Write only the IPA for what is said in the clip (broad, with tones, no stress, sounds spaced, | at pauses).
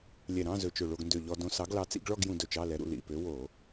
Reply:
lʲ ɛ˧˩ ɾ ɑ̃˧˥˧ z ɵ˧˩ t͡ʃ ɵ˧˩ ɭ o˧ ɡ n d ø˧˩ ʎ ɔ˧ d õ˧ s ɑ˨˥ ɡ l ɑ˨˥ t͡s ḭ˥˧ ɡ ɭ ɔ˥˧ ɡ j ũ˧ d ɵ˧ t͡ʃ ɑ˧˥˧ l ɛ˨˥ ɾ ṵ˧ l ḭ˧˩ p ø˨˥ w o˧˩˧